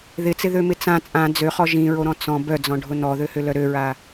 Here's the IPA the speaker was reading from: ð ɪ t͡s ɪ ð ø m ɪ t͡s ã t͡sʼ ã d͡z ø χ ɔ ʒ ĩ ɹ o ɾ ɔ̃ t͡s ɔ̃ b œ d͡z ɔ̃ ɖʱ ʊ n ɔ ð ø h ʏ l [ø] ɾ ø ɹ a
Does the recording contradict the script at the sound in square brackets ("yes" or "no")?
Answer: yes